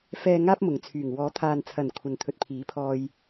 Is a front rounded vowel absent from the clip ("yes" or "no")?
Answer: no